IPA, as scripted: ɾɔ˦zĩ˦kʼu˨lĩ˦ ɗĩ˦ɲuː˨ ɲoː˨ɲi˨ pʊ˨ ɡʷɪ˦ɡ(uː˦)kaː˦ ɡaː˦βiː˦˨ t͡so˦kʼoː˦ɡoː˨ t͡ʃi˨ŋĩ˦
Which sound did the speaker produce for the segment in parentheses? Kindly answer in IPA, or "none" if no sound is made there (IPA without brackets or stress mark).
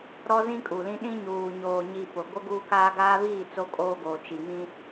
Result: uː˦